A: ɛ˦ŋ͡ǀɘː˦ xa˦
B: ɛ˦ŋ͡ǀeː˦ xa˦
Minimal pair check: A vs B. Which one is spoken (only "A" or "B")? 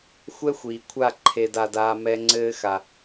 A